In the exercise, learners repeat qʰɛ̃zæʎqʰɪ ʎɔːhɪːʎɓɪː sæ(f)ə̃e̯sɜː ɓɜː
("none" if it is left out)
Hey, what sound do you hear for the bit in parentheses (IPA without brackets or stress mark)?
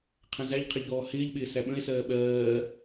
ɓ